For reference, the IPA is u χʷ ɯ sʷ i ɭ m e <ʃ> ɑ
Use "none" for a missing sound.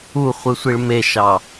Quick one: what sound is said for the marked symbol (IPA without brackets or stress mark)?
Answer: ʃ